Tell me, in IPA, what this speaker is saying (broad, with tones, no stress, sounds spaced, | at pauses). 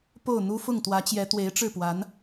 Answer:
p o˥˩ ʊ̯ n̪ u˥ f ʊ˥˩ ŋ t̪ w ä˧˥ t͡ɕ j ɛ˧˥ t̪ w e˧˥ ɪ̯ ʈ͡ʂ ɻ̩˥˩ p w a˧˥ n